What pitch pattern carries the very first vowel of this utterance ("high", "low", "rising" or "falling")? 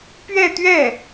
falling